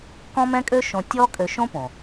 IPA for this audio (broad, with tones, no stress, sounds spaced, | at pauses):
k ɔ̃˥ m ɛ̃˥ kʼ ø˥ ʃ õ˧ tʲ ɔ˥ kʼ ø˧ ʃ õ˥ p õ˩